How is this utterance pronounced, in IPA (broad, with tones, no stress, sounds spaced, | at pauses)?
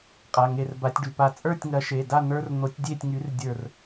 qʼ a˩˧˩ ŋ e˧˩ r b a˨˥ tʲ ɖ y˩˧˩ p a˧˩ t͡sʼ ə˞˥˨ tʲ ŋ ɐ˨˥ ʃ e˩˧˩ d a˥˨ n̪ ə˞˦ r n̪ o˨˥ tʲ dʲ e˥˨ tʲ ŋ y˨˥ r dʲ ə˞˧˩ r